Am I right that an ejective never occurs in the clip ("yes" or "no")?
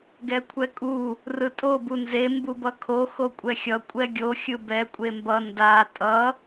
no